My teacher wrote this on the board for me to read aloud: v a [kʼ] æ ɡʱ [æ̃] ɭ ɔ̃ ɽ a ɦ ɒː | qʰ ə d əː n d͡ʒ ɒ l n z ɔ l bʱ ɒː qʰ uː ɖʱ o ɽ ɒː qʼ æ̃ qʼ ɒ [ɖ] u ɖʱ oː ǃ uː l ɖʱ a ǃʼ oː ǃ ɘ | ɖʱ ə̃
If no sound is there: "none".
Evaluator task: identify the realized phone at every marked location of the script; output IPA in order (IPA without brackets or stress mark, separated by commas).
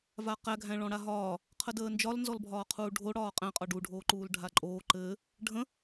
q, æ̃, ɖ